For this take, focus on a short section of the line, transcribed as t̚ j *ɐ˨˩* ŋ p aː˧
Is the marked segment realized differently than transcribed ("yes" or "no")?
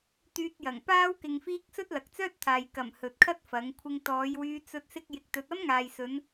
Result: no